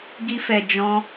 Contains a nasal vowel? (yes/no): yes